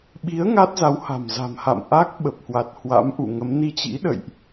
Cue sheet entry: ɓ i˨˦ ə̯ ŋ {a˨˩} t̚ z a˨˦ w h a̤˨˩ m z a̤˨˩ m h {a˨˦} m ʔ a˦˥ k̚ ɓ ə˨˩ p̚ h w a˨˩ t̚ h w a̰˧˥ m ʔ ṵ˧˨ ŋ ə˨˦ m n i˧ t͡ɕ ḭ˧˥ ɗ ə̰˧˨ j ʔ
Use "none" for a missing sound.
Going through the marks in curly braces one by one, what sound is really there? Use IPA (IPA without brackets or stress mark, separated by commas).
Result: a˦˥, a̰˧˨